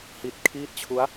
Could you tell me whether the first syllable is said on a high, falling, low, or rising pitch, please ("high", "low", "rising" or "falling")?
low